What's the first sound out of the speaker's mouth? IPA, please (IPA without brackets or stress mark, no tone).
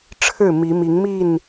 ʈ͡ʂʰ